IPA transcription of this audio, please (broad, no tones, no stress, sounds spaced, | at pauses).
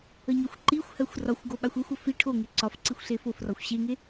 ə ɲ ɒ xʷ ǃ i xʷ h ɜ xʷ r ɒ xʷ ɡ o ɓ a xʷ e xʷ ə f i ʈʰ o ŋ e ǀ ɒ f ǀ i xʷ ɬ e f o f r ɒ xʷ ɕ e ŋ e